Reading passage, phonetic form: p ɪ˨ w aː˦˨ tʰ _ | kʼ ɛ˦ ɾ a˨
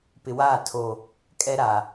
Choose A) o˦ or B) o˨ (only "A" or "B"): B